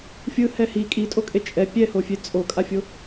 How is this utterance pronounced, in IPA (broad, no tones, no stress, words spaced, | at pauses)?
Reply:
fʲɯhɛ hi kʼitʼokʼe t͡ʃʼɛ pʲɛhofʲe t͡sʼokʼafʲo